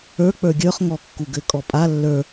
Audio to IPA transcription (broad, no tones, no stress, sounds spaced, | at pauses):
ə˞ k͡p ə˞ ɡʲ ə˞ χ ŋ ɔ kː u ɡ ɘ kʼ ɔ pʼ a lː ə˞